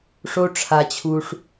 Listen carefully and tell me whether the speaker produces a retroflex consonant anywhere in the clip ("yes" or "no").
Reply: yes